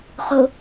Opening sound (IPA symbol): χ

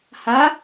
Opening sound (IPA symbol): h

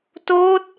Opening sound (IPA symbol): t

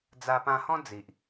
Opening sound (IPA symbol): d͡z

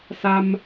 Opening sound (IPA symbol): s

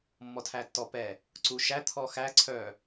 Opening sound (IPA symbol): mː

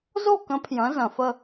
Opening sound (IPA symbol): z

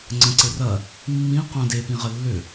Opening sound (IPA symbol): ŋ͡ǀ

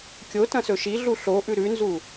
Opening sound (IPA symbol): kʲ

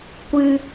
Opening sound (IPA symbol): kʷ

